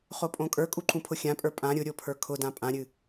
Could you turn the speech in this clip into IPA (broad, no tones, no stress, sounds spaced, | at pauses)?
χ o pʼ õ kʼ ə˞ kʼ u ǃ ũ pʰ ʊ xʲ ã pʼ ə˞ pʼ ã ɾʲ ʊ ɾʲ o pʰ ə˞ kʰ ʊ d ã pʼ ã ɾʲ ɨ